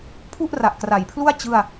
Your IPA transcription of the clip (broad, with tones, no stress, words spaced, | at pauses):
pʰu˥˩ʔra˨˩ʔkra˩˦jpʰlu˥˩a̯ t͡ɕɯ˥˩a̯